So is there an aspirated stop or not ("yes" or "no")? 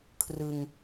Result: yes